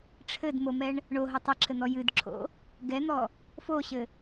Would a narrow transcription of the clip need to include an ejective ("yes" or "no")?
no